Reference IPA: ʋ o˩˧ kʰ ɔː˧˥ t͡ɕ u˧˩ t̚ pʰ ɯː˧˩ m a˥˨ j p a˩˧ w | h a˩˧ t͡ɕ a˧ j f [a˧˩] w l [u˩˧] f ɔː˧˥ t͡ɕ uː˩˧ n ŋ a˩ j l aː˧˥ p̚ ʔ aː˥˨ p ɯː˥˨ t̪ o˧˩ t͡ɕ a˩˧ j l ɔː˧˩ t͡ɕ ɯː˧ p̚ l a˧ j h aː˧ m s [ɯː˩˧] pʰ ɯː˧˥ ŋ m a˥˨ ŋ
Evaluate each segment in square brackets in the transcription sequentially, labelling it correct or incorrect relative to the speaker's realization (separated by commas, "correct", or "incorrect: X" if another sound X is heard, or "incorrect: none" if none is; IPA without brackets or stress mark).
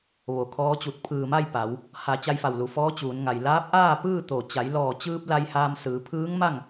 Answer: correct, correct, correct